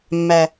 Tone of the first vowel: low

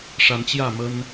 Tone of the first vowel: rising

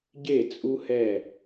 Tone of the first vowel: falling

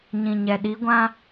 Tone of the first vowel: low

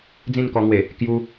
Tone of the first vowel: falling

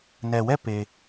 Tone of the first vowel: low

